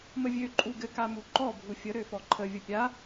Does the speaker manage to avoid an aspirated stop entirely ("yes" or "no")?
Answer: no